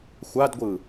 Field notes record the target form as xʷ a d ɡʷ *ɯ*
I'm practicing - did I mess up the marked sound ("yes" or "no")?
no